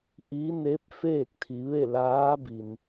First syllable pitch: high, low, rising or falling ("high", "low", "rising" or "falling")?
rising